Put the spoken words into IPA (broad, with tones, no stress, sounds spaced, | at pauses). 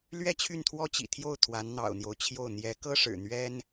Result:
l ɥ ɛ˥˧ t͡ɕʰ y˥˩ n t̪ʰ w ɔ˥ t͡ɕ ḭ˨˩ t̪ʰ j o˥˩ ʊ̯ t̪ʰ w a˧˥ n n̪ ɑ̰˨˩ ʊ̯ n̪ j o˦ ʊ̯ t͡ɕʰ j o˥˩ ʊ̯ n̪ j ɛ˧˥ k ɤ˥ ʂ ɻ̩˨˩ n̪ ɥ ɛ˥ n